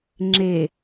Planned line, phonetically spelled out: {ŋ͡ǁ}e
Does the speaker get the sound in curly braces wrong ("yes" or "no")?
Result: no